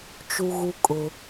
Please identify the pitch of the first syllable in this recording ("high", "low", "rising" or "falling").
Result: high